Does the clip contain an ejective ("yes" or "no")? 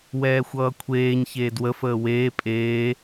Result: yes